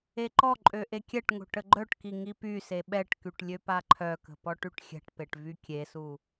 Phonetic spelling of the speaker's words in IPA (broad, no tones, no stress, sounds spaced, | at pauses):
e ǃ ɔ ǃʼ ø ʔ e kʲ ɛ ʈ ŋ o̤ ʈ ə ɡ͡ǃ œ ʈ k i ŋ i p y s e ɓ ɛ ʈ k y ʈ lʲ ø p a ǃʰ œ k ə̤ p ɔ ʈ y ʈ xʲ ɛ̤ ʈ p e ʈ v y kʲ e s u